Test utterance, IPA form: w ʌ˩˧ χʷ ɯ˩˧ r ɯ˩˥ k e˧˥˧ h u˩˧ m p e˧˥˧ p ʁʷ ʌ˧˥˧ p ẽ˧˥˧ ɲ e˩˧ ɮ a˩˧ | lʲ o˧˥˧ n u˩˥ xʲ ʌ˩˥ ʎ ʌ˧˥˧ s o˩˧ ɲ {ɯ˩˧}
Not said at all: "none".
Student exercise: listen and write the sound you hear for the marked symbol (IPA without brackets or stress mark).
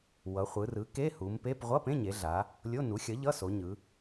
ɯ˩˧